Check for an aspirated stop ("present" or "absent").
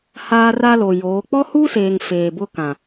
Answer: absent